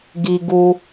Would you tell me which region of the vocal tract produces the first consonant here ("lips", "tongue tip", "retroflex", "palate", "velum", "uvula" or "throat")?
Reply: velum